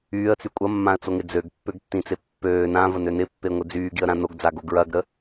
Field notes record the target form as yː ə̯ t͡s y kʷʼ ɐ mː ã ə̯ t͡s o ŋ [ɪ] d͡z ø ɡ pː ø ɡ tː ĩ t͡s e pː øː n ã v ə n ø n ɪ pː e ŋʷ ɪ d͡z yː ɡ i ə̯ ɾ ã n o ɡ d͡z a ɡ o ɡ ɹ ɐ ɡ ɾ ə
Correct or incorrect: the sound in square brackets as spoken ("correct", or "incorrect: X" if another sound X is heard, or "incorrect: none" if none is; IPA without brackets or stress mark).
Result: correct